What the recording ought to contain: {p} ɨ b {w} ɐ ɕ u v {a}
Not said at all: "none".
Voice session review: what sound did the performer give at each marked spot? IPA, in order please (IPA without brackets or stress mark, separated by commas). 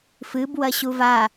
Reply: f, w, a